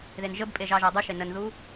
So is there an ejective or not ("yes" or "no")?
yes